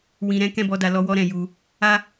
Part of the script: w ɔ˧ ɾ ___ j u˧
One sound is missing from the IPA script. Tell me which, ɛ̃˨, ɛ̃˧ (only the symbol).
ɛ̃˨